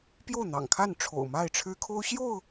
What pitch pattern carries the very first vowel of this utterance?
falling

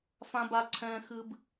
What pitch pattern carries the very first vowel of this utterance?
high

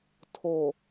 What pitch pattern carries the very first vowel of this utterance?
low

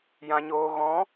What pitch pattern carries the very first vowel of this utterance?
low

